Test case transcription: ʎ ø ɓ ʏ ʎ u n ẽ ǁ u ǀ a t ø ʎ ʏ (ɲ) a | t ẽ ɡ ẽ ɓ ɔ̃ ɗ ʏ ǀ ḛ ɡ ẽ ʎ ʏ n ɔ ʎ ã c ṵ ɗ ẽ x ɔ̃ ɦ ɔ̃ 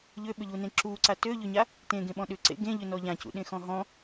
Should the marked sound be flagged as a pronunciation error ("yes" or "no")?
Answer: no